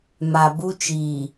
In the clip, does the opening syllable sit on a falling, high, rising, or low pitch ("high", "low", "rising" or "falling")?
low